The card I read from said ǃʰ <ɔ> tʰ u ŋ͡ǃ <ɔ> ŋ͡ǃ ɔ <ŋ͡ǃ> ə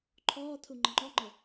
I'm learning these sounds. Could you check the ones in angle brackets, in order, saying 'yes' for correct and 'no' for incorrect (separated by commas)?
no, no, yes